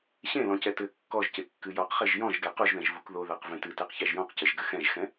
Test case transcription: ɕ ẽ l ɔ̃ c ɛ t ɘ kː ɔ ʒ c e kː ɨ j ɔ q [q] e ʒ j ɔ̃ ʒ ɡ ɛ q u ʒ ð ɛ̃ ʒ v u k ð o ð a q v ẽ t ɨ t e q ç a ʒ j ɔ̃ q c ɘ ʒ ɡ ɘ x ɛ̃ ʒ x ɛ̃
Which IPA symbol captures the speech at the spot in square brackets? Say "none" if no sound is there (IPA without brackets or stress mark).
χ